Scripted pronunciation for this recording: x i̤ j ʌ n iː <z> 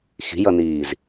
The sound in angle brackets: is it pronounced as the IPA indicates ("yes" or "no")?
yes